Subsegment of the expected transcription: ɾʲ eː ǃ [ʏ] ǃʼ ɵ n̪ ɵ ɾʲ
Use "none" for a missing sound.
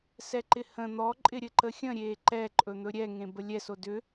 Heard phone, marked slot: ɛ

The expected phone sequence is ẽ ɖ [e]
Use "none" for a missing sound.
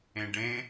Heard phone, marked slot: ẽ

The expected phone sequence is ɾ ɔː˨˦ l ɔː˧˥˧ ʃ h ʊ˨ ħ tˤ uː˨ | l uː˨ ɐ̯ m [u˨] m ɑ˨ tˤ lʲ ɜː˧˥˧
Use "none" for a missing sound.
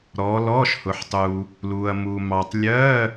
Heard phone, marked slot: u˨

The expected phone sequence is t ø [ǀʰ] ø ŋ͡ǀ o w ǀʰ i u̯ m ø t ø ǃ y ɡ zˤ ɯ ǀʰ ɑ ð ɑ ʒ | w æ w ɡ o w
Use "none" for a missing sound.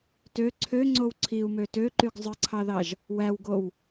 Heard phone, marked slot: ǀʰ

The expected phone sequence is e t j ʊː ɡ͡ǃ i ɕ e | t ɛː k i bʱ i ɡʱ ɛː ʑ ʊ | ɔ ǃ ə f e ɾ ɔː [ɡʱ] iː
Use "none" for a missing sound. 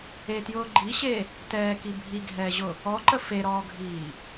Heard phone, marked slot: ɡʱ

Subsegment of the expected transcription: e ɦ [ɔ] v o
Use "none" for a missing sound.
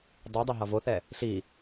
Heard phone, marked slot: ʌ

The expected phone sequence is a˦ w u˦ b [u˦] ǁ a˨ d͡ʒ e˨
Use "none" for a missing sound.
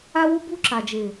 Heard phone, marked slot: u˦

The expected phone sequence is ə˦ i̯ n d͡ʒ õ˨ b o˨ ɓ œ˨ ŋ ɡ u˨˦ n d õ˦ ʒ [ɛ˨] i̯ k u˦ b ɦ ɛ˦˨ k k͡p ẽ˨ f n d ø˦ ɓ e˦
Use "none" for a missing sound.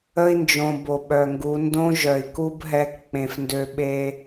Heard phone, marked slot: œ˨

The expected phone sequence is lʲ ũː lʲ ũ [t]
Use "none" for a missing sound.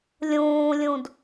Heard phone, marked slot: d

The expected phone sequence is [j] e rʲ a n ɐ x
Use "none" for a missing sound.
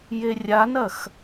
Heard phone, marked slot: j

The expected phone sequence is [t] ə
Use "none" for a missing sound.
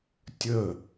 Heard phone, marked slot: tʲ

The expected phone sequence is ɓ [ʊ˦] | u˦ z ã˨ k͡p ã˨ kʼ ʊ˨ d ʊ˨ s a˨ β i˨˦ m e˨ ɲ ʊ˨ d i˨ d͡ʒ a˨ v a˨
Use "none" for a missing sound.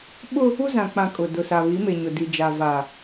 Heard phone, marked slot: ʊ˦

